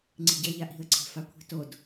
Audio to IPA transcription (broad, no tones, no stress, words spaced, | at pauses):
ŋ͡ǀi̤ɟɐ ʎaʔi̤ə̯ ǀʰe̤fakʷʰi̤tod